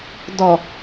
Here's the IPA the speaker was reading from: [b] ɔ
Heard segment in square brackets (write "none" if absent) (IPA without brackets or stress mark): d